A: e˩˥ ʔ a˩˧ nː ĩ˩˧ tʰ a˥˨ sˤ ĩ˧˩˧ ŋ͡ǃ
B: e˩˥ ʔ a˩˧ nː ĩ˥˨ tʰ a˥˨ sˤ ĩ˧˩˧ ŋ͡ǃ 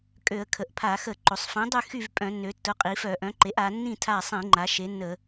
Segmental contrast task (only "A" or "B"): B